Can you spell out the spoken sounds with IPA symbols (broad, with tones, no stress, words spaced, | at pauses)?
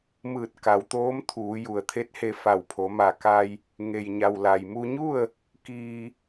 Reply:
mɯː˧˩t̚ ka˩˧wt̪oː˧˥m t̪ʰuː˩˧ju˩ə̯t̪ʰe˧˥t̚he˧ fa˧˩wpʰo˩˧ma˧˩ ka˧j | ŋe˩jɲa˩w la˩jmu˧ɲu˥˨ə̯ | kiː˧